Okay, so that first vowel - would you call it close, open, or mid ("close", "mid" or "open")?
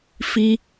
close